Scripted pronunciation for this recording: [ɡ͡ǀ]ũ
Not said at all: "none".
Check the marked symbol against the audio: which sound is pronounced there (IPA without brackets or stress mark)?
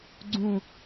ɡ͡ǀ